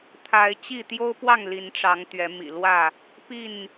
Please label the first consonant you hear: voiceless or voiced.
voiceless